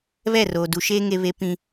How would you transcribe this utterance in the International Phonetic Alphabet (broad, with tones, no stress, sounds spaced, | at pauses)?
β ɛ˦˨ r oː˨ d u˨˦ ʃ eː˦ ŋ e˦ β e˦ p ĩ˦